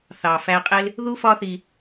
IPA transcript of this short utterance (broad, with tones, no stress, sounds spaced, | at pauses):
θ ɑ˨ f æ˧ qʼ ɪ˦ l | ð u˦ f ɒ˦ θ i˧